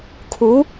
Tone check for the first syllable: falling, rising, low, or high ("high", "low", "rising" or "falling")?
rising